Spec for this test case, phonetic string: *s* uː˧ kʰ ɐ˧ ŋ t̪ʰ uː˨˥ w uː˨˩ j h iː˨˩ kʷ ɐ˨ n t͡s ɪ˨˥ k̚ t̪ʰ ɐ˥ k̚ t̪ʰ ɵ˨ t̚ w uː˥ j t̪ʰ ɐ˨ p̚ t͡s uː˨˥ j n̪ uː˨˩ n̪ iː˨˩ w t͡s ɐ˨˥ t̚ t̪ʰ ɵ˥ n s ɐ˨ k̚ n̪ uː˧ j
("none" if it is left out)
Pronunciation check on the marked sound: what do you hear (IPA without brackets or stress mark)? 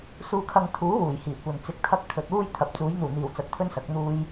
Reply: s